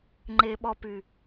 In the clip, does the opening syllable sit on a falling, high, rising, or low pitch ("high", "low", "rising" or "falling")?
low